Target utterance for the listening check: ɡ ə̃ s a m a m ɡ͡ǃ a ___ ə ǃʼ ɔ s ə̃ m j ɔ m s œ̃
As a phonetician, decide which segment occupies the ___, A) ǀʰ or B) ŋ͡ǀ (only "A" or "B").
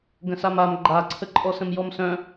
A